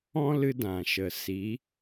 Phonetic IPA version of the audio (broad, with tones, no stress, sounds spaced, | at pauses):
ɔ̃˦ l ɨ˧ d ã˨ ʃ ə˨ s i˨˦